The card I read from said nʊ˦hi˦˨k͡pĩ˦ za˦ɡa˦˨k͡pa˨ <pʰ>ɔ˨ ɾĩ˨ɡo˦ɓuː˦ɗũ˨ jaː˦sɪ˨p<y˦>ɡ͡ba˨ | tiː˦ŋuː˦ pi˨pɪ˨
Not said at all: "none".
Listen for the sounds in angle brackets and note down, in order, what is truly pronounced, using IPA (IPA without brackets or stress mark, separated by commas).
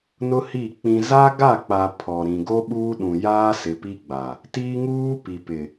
pʰ, i˦